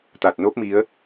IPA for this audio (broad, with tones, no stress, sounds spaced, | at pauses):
t̪ a˨˩ t̚ n o˦˥ p̚ m i˨˦ ə̯